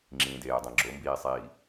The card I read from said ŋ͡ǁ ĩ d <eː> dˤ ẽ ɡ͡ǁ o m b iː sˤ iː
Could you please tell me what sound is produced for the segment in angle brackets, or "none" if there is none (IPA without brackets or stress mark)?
eː